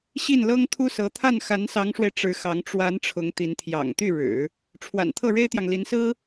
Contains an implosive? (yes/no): no